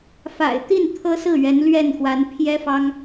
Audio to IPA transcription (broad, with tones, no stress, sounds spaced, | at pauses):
f a̰˨˩ ɪ̯ t̪ i˥˩ n t̪ʰ ɤ˥ s ɹ̩˥˩ ɥ ɛ˧˥ n l ɥ ɛ˥˩ n x w a˧˥ n pʰ j ɛ˥ f ɑ˥ ŋ